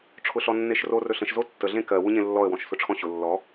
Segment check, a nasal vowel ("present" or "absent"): present